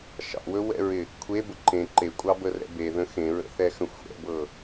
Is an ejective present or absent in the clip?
present